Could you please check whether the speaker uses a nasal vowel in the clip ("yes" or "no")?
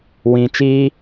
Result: yes